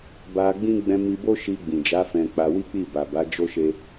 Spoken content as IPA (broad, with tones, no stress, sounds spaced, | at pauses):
b a˧ ɡ͡b ĩ˦ ɡ͡b ɛ̃˧ m i˧ b o˦ ʃ i˧ ɡ͡b ĩ˨ d͡ʒ a˨˦ f ɛ̃˧ k͡p a˧ w i˦ k͡p i˦˨ b a˨ b a˨˦ d͡ʒ o˦ ʃ e˧